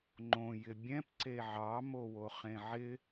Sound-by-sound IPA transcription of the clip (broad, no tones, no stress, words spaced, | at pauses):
ŋ͡ǃõ jɪbʲɛ̃p ǀeʕɑ mowoχẽʕɪ